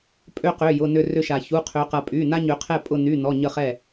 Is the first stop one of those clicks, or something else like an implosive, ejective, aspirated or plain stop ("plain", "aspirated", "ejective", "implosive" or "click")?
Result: ejective